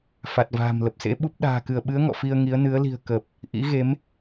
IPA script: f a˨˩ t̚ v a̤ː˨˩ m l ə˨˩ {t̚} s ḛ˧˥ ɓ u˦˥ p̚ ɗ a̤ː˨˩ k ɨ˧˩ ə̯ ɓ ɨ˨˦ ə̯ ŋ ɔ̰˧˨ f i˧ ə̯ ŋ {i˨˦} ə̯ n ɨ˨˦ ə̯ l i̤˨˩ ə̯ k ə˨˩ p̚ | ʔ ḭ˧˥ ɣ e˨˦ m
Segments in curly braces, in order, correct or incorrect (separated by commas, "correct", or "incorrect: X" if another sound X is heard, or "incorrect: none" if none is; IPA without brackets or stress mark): incorrect: p̚, correct